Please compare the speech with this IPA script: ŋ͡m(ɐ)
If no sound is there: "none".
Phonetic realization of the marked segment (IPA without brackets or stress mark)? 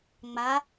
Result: a